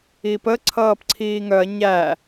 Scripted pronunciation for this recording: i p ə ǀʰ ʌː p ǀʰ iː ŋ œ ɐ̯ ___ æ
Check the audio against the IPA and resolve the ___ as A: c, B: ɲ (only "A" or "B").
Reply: B